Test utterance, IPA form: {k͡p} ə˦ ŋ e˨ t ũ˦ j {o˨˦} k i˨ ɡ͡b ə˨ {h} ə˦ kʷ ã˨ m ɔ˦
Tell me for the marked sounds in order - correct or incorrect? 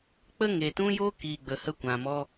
correct, incorrect, correct

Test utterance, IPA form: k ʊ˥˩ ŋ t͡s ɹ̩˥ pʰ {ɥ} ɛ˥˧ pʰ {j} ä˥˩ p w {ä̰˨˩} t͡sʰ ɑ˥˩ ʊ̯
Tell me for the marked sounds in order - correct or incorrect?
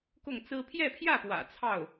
incorrect, correct, correct

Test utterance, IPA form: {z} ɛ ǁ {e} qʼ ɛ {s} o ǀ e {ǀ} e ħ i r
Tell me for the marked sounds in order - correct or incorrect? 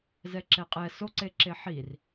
correct, incorrect, correct, incorrect

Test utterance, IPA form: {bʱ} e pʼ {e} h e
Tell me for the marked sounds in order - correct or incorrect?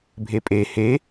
correct, correct

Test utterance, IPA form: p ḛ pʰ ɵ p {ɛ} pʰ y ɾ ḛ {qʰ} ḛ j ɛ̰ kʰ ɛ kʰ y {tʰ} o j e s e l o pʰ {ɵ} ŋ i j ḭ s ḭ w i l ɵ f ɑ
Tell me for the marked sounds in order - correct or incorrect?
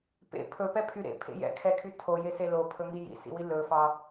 correct, incorrect, correct, correct

